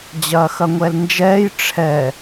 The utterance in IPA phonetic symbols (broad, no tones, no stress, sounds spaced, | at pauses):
d͡ʑ ɐː x ɐ ŋʷ ɛ l n d͡ʒ ɛː j ʈ͡ʂʰ ɛ